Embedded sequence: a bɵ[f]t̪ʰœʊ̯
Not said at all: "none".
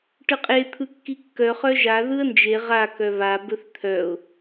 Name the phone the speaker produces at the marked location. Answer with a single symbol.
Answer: θ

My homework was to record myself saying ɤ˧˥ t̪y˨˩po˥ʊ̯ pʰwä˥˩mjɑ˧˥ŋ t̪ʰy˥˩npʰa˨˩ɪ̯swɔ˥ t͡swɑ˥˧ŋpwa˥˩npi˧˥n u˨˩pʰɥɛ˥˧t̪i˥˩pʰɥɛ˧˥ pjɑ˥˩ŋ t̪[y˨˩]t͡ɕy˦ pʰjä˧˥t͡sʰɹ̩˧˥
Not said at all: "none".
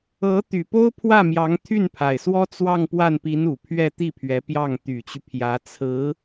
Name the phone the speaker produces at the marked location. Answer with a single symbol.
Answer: y˨˩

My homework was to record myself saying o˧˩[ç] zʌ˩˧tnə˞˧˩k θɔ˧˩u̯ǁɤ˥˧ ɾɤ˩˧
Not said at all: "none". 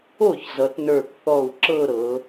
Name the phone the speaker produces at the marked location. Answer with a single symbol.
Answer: ç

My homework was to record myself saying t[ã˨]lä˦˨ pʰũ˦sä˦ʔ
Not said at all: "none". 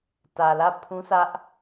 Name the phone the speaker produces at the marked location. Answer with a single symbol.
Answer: ä˨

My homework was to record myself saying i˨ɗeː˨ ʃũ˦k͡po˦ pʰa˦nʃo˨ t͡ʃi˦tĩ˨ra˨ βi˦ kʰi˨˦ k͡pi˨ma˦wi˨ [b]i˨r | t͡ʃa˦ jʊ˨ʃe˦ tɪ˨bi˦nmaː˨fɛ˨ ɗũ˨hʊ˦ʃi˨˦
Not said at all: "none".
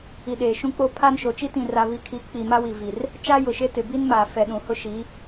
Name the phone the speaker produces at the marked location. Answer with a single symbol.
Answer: v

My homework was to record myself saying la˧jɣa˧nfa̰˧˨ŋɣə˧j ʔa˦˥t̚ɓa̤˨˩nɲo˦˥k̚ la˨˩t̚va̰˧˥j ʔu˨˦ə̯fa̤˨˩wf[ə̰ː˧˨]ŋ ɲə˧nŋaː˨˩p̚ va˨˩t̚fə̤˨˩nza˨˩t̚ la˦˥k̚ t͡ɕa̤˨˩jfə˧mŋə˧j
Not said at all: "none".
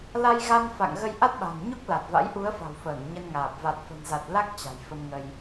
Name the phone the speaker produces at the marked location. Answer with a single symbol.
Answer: əː˧˩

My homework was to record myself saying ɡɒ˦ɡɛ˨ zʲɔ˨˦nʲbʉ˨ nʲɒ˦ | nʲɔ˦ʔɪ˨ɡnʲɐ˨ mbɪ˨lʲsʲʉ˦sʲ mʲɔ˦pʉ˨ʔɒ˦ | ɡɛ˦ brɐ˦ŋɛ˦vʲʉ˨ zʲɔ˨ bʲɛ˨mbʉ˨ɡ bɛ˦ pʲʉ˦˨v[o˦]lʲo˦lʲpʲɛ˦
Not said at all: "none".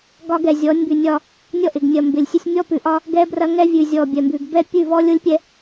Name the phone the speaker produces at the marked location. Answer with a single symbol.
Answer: ɔ˦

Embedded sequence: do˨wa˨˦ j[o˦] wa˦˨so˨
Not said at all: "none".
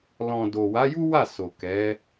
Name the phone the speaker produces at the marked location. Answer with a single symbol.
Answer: u˦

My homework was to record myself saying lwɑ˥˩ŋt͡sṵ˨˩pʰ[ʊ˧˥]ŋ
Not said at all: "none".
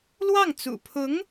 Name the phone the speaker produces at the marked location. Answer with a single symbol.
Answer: ʊ˧˥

